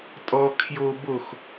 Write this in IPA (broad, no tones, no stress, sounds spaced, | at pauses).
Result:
tʼ ɔ kʰ j o b o x